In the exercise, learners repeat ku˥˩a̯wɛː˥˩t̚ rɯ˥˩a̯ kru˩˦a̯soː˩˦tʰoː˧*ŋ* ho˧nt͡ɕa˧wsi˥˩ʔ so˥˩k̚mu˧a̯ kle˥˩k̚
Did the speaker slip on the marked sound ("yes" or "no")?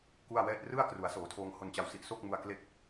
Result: no